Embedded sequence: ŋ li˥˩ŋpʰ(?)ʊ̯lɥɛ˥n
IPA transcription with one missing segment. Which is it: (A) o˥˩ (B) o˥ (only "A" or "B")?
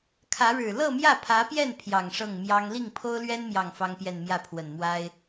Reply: B